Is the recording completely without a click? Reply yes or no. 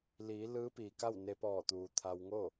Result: yes